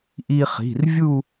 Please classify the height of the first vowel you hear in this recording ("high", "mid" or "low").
high